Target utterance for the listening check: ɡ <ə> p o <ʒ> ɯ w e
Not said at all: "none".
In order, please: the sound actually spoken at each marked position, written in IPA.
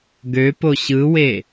ø, ɕ

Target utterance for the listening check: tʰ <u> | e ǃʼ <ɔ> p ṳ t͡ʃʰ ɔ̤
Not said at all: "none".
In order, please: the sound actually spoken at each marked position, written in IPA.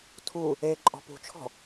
u, ɔ̤

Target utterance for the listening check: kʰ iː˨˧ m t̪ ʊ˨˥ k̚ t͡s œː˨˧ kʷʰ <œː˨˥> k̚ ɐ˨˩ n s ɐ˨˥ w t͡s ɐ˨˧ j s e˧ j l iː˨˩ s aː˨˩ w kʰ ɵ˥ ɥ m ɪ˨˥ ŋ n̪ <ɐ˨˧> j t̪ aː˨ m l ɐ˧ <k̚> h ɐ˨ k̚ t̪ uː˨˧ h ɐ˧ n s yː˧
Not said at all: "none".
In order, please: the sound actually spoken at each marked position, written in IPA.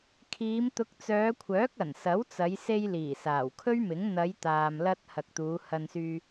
œː˨˥, ɐ˨˧, t̚

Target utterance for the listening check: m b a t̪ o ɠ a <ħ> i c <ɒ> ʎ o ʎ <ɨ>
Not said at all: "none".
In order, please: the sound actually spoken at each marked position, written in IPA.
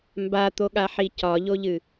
ħ, ɒ, ɨ

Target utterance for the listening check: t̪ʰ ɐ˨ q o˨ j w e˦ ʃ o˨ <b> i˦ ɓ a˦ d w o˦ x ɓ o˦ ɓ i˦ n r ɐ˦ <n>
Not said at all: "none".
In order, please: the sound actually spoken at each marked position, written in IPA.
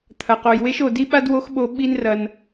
d, n

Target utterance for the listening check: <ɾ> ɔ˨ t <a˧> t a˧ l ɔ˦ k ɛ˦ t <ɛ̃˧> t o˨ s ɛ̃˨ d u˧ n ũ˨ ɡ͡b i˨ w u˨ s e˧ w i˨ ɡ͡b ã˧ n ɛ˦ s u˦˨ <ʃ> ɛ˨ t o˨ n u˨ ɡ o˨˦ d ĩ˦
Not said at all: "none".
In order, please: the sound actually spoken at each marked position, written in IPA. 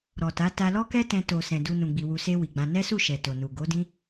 ɾ, a˨˦, ɛ̃˧, ʃ

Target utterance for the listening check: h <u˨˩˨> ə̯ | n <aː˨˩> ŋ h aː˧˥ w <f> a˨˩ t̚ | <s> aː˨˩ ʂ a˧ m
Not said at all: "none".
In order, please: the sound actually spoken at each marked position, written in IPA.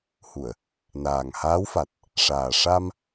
u˨˩˨, aː˨˩, f, ʂ

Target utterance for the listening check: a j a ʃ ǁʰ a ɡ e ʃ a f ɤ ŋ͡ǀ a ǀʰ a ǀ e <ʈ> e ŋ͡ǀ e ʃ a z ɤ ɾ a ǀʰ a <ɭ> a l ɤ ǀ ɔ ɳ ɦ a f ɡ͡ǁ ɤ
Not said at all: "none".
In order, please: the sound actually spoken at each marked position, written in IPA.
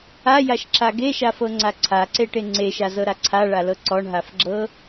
ʈ, ɭ

